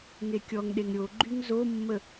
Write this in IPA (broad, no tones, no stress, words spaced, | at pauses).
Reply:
ŋekʲɔŋɗeŋ ɾʲoɡ͡ǃyŋ zomːə